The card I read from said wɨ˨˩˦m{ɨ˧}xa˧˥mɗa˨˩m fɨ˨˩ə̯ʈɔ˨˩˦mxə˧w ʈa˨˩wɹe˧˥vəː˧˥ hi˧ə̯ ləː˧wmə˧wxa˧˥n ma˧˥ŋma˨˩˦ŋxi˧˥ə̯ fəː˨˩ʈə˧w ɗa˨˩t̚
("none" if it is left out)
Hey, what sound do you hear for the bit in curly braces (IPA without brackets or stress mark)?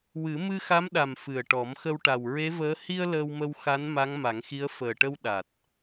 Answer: ɨ˧